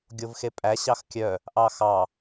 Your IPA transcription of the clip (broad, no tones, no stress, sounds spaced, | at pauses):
ɡʲ o v x e pʼ æ ɕ ɑ x kʲ œ | ʔ ɑ x ɑ